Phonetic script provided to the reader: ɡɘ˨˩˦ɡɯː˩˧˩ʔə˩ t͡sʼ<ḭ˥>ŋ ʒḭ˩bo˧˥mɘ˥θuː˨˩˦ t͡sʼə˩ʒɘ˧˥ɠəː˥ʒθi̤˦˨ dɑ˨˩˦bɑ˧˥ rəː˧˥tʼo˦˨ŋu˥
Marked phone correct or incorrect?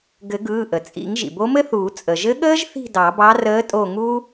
incorrect